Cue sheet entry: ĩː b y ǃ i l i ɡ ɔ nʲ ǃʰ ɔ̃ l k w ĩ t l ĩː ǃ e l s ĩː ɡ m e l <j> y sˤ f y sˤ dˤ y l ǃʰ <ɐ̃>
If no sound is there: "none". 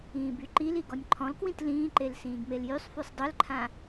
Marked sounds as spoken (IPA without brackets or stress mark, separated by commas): j, ã